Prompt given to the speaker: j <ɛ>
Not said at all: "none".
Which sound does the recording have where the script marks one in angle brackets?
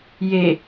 e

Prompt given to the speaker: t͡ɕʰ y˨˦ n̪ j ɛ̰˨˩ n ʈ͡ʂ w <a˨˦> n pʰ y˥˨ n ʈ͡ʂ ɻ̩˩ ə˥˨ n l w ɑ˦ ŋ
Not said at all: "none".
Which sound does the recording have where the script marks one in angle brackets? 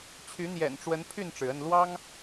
ə˨˦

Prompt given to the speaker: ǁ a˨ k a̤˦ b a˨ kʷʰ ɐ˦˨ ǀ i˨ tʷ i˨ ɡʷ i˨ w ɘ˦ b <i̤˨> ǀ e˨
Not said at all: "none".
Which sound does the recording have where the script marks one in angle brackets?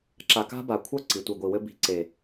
i̤˨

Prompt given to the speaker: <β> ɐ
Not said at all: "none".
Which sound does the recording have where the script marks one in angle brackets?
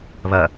β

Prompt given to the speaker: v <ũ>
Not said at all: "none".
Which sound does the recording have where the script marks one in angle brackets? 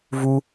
u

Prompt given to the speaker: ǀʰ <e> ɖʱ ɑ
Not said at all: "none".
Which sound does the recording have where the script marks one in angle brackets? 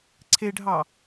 e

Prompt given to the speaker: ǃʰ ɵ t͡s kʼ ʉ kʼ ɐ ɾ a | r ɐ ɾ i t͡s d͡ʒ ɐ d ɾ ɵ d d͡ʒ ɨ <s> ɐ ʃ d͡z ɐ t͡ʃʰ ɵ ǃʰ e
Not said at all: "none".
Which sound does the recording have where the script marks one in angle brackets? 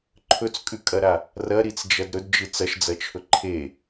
t͡s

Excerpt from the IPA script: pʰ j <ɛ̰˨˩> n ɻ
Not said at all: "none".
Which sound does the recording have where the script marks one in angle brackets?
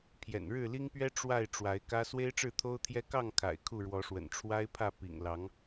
ɛ̰˨˩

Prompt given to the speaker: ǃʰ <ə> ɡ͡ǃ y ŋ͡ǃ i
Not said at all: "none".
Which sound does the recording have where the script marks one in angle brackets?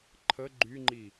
ə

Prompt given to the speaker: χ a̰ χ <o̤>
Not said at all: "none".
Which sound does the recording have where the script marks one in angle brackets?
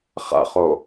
o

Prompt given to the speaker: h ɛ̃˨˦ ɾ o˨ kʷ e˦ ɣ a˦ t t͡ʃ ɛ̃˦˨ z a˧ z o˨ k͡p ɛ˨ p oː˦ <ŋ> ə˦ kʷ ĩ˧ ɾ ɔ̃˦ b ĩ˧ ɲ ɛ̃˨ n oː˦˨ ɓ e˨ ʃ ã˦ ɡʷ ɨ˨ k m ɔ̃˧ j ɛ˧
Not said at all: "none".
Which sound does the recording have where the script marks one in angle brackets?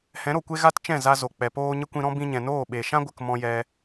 ɲ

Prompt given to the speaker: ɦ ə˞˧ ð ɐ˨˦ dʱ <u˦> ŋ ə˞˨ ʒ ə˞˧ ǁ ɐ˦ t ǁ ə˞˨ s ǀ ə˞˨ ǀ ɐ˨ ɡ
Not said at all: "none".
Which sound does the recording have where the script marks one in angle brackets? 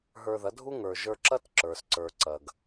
u˦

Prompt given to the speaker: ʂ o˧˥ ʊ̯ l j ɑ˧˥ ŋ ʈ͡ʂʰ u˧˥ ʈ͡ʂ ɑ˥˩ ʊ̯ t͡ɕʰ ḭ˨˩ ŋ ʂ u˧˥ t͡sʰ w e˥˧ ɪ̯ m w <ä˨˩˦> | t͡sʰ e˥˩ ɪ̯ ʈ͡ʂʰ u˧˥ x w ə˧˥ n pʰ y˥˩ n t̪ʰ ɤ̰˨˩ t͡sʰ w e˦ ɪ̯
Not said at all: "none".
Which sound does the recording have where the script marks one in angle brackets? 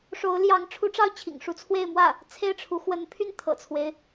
ä˥˩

